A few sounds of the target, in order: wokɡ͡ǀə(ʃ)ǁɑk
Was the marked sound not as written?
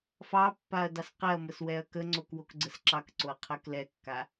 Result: yes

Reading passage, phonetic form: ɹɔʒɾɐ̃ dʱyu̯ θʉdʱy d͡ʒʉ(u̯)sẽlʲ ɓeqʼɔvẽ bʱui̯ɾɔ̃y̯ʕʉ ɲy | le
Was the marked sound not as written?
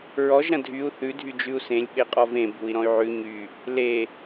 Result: no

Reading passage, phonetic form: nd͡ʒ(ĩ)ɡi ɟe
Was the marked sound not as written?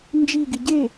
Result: yes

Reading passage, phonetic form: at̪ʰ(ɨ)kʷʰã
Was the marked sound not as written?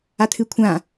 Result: no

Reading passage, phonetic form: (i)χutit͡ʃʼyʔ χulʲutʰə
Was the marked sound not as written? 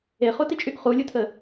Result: yes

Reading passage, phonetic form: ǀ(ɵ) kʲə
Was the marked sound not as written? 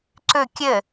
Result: no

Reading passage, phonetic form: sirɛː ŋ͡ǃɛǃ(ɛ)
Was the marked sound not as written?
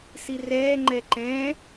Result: yes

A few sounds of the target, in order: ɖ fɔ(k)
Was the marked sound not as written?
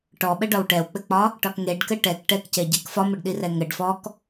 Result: no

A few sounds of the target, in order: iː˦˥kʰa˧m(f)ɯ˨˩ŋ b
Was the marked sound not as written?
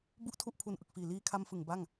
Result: no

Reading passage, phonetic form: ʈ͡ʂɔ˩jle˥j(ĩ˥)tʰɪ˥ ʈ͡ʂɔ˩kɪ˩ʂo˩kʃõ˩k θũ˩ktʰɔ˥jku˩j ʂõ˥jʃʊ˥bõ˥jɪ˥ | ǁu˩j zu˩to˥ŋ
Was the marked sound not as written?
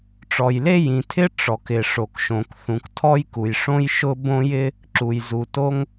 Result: yes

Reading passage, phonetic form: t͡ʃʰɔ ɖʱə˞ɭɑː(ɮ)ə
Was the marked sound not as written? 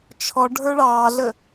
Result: no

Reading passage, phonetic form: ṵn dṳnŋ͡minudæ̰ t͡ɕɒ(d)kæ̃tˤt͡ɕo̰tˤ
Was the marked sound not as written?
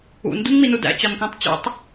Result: yes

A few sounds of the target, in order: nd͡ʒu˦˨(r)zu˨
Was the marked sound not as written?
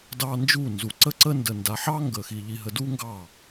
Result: yes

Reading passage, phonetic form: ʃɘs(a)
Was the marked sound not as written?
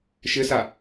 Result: no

